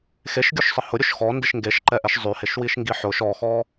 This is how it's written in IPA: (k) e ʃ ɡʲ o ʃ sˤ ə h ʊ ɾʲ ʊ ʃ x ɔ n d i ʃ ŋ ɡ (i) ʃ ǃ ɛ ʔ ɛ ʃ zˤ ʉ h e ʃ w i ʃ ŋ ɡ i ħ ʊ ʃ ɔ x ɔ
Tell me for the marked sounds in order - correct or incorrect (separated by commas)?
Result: incorrect, incorrect